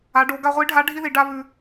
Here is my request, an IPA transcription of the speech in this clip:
a˩˧ ɖ o˩˧ ɡ a˧ ʁʷ i˧˥ ɖʱ a˧˥ ɖʱ i˥ ð i˩˧ ɖ a˥ β ʉ˧

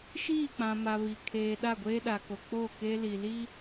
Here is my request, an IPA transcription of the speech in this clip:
ʃ iː˦˨ k͡p ã˨ m a˨ β i˨ kʰ eː˨ ɗ a˦˨ ɡʷ eː˦ ɗ a˨ k o˨ k͡p o˦˨ k e˦ l i˨ l i˦

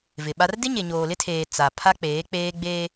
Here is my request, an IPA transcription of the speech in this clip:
v ɪ˨ ɓ a˦ r d ɪ˦ ɲ e˨ ɲ oː˨ l ɪ˦ tʰ eː˨ t͡s a˨ pʰ a˦ k͡p eː˨˦ k͡p eː˦ ɡ͡b eː˦

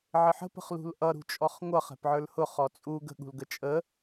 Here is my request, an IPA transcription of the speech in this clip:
ʕ ɪ ħ ə̤ p ə̤ χ l ṳ l ʔ ʌ ɾ ṳ t͡ʃʼ ɔ χ ŋʷ ʌ χ ɛ̤ p ʕ ə˞ l h ʊ χ ɔ t͡sʼ u ɡ ə̤ ɠ ṳ l ɡ ə t͡ʃʼ ə

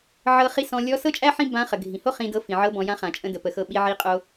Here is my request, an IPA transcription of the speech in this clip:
ʕ ɤ˧ χ i˧˥ s ɔ̃˧ lʲ ɔ˧˥ s ɤ˥ t͡ʃʼ æ˥ ħ ĩ˥ b ã˧˥ χ ə˩ ɡʱ ĩ˩ h o˥ χ ĩ˧ d ɤ˧˥ f ĩ˩ ʕ ɤ˧˥ b ɔ̃˩˧ j ã˧˥ χ ã˩ t͡ʃʼ ə̃˧ d ə˩ p ə˩˧ x ɤ˧ ɓ i˧ ʕ i˧˥ qʼ o˧

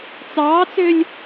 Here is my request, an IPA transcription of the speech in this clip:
t͡s ɑː t͡s ø lʲ

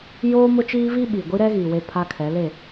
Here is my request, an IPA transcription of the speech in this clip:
j oː˦ m ʊ˦ t͡ʃ iː˦ v i˦ ɓ i˨ ɡʷ i˦ ɾ ɛ˦ ɣ i˨ w e˨ pʰ a˨ kʰ ɛ˨˦ l e˦˨

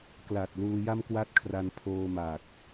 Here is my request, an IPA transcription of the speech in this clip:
k l a˨˩ t̚ l uː˧ j a˥˩ m k w a˥˩ t̚ kʰ r a˧ n pʰ oː˧ m aː˨˩ k̚

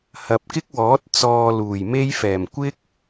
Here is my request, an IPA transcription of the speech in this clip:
h ɐ˨ p̚ k ɪ˥ k̚ w ɔː˨˥ t̚ t͡s ɔː˧ l uː˨˩ j m e˥ j f ɛː˨˩ m kʷ ɪ˥ k̚

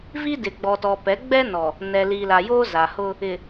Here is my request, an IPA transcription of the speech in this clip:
v i˦ d ɪ˨ ɡ͡b ɔ˨ t ɔ˨ p ɛ˨˦ ɡ͡b ɛ˦ n ɔ˨ | n ɛ˨ l iː˨ l a˨ j oː˦ z a˨ h ʊ˦ | ɪ˨

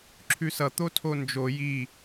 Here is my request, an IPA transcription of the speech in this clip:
ǁʰ ʉ s ʌ t̪ o tʰ o n d͡ʒ o j i

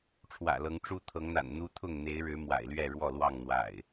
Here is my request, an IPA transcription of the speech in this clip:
ʈ͡ʂʰ w ä̰˨˩ l ɤ˨˦ ŋ ʈ͡ʂ u˦ t̪ʰ ɤ˨˦ ŋ n̪ a̰˨˩ n n̪ u˦ t̪ʰ ʊ˥˨ ŋ n̪ e˨˦ ɪ̯ ɻ ɻ̩˨˦ m w a̰˨˩ ɪ̯ l ɥ ɛ˥˨ ɻ w ɔ˥˨ l w ɑ˥˨ ŋ n̪ w a̰˨˩ ɪ̯

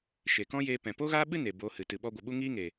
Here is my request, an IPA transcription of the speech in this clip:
ʃ e˨ k ɔ̃˦ j eː˧ p ɛ̃˨ p o˦ ɣ aː˦ ɓ ɨ˦ n e˨ b oː˧ h ɨ˨ t ɨ˨ ɓ ɔ˧ ɡʷ ə˨ ɓ u˦ ŋ iː˦ ŋ eː˨

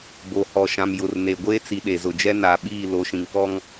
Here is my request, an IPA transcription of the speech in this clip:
b o˨ h ɔ˨ ʃ ã˨ m j ʊ˨ r n e˨ ɡʷ eː˦ t͡s i˨ ɗ e˨ z ʊ˨ d͡ʒ ɛ˦ n a˨ ɓ iː˦˨ l o˨˦ ʃ ĩ˨ ŋ k ɔ˦ ŋ

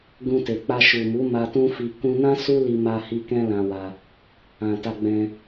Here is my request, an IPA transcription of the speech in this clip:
ɡ ũ˧ t e˨ k͡p a˧ ʃ u˨ m u˨˦ m a˧ t ũ˦ f i˧ k ũ˧ n ã˦ s u˦ l i˧ m a˧ h i˧ k ɛ̃˦ l ã˧ w a˧ | ã˨ t a˧ ɡ͡b ɛ̃˧

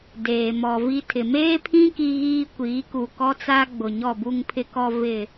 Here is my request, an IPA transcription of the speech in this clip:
d eː˨ m ɔ˨ v i˦ tʰ ɪ˨ m eː˦ pʰ ĩ˦ k i˦ ɣ iː˦ kʷ iː˨˦ k u˨ k ɔ˦ t͡s a˦ ɡ͡b ʊ˨ ɲ ɔ˦˨ b u˦ ŋ pʰ ɪ˦ k ɔ˦ v ɪ˦˨

